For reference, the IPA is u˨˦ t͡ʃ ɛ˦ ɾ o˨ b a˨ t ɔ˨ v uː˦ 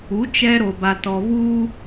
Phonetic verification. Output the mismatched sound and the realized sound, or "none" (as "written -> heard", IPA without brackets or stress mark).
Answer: none